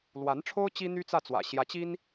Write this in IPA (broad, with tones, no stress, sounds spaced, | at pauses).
l w a˧˥ n ʈ͡ʂʰ o˥ ʊ̯ t͡ɕ i˥ n̪ y˥ t͡s ä˥˩ t͡s w ä̰˨˩ ɕ j ä˧˥ t͡ɕ i˥ n